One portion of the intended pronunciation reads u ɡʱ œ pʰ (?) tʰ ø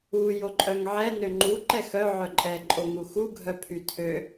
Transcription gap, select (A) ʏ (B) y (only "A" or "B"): B